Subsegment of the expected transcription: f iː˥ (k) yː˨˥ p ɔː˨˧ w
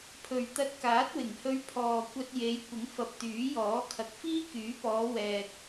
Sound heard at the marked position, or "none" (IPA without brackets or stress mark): k